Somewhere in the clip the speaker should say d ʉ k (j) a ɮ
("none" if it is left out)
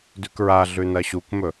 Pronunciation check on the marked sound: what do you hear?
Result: ɹ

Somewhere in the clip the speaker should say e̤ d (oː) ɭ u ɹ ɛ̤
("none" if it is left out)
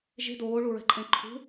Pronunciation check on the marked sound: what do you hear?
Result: oː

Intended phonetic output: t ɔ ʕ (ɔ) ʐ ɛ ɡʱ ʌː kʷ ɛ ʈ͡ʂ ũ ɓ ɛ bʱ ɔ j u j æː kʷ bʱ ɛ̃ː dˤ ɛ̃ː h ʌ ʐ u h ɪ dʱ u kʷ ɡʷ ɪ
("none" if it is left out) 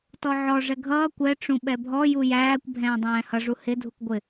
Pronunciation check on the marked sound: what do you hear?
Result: ɔ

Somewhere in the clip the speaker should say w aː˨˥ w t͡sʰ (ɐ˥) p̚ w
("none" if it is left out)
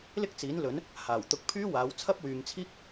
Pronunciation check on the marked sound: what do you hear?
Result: ɐ˥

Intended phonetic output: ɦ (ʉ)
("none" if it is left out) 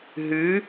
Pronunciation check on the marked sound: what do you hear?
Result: ʉ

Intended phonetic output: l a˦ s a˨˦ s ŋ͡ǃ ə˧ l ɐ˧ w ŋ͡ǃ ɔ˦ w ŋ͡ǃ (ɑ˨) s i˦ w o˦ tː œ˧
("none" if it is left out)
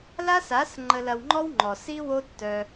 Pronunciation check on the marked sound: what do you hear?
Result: ɔ˨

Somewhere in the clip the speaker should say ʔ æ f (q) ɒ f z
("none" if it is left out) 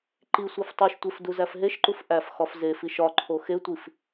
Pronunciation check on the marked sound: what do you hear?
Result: x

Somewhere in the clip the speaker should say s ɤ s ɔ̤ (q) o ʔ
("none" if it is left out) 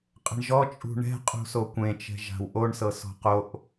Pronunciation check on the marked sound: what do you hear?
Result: q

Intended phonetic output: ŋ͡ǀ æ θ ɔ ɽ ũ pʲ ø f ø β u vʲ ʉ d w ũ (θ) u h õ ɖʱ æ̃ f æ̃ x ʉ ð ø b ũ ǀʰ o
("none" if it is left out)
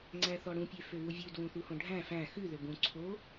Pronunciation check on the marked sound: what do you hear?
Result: θ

